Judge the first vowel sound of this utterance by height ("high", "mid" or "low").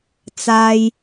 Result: low